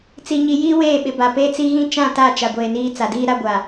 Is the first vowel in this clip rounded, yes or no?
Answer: no